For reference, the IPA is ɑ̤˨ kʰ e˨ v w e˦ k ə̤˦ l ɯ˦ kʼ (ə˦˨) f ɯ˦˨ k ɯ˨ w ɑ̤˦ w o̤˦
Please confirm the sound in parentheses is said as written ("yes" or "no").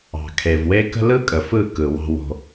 no